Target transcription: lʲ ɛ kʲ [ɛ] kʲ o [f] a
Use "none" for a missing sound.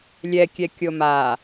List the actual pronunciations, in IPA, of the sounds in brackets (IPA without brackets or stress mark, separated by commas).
ɛ, m